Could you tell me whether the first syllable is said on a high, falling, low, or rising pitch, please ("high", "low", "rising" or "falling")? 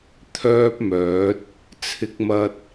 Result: high